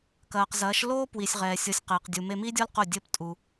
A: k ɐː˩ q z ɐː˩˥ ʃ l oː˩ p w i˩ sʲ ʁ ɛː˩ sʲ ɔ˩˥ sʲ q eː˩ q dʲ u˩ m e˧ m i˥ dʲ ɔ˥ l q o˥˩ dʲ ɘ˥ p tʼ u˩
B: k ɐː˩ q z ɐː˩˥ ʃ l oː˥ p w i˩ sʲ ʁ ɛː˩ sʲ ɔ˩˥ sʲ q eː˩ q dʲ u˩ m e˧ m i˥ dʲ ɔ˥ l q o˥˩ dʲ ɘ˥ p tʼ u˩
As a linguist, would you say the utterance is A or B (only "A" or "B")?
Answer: B